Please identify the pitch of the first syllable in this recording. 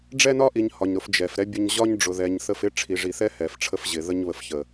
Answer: high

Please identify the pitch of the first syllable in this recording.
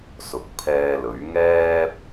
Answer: rising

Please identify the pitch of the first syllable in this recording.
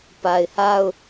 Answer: low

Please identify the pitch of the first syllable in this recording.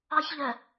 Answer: high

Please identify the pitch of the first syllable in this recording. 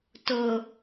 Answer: low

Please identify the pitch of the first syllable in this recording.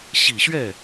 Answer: low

